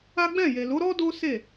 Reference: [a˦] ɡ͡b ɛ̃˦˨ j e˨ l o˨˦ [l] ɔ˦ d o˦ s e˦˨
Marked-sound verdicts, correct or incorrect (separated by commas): correct, incorrect